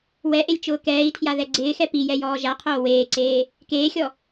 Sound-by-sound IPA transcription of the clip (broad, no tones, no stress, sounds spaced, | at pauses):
w ɛ ʔ e lʲ t͡ʃ ʊː k ɛː i̯ tʰ j a ð ɛ ɡ͡ǀ ɪː x ɛ p i j ɛ j ɔː ʒ a qʰ oː w eː ǀ eː | k eː xʲ ɔ